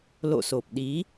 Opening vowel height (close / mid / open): mid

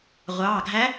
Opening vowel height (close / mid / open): open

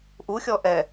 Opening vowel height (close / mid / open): close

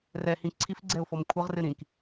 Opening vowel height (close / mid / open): mid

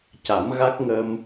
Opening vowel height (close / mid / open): open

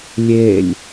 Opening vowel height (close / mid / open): mid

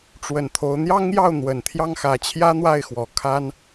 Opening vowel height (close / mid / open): mid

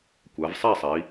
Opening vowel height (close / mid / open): open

